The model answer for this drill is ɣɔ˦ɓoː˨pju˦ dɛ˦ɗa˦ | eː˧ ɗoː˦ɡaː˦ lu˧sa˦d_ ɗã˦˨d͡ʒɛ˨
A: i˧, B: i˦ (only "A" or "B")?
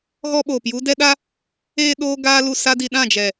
A